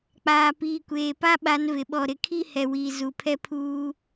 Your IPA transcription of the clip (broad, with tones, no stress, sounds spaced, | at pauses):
k͡p aː˨ p iː˨ kʷ eː˨ p a˦ ɓ a˨˦ n v ɪ˨ ɓ ɔ˨ ɾ ɪ˨ kʰ i˦ h ɛ˨ w iː˨ z u˨ pʰ ɛ˦ pʰ uː˦